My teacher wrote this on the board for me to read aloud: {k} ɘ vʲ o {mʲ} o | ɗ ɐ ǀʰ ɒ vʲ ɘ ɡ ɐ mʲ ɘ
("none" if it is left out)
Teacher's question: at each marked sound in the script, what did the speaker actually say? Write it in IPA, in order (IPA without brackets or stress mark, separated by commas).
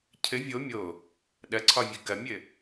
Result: cʰ, mʲ